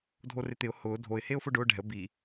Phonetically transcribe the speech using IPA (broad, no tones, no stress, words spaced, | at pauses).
dʱorɪt̪ɪʊ̯ hʊː dʱoɪ̯ heʊ̯fʊɖʊː ɖɛ̤ə̯ bi